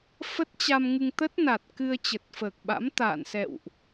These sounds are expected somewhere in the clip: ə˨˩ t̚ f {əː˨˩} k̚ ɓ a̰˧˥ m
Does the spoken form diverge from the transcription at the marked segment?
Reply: no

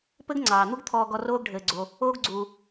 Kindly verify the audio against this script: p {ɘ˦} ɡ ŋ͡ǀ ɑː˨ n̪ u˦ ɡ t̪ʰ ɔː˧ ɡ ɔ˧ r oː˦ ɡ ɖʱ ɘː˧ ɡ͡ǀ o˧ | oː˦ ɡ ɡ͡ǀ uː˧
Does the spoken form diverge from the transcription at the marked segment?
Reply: no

